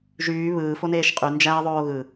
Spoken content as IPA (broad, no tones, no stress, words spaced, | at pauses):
ʒyː βɯːfoneːʃ qʼy nd͡ʒæɐ̯ðˤoː ɣɯ